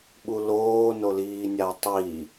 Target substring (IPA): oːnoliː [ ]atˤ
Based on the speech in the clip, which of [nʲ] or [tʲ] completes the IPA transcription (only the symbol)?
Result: nʲ